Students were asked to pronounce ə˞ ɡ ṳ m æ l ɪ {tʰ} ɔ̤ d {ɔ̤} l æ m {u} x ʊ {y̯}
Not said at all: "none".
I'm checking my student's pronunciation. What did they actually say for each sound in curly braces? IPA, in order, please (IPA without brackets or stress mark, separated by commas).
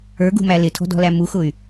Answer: tʰ, ɔ̤, u, y̯